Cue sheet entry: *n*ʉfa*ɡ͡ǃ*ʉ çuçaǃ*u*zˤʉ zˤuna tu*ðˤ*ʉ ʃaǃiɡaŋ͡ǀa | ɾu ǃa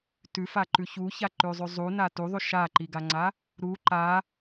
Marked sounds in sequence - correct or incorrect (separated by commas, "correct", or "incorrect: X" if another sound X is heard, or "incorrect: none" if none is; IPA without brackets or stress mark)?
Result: incorrect: t, incorrect: ǃ, incorrect: ʉ, correct